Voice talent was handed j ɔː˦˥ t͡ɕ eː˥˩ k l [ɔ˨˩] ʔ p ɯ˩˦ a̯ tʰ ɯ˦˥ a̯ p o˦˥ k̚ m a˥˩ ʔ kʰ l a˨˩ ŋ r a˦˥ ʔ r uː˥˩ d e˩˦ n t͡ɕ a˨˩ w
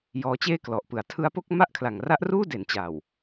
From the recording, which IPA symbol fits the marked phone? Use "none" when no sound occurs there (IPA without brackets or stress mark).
ɔ˨˩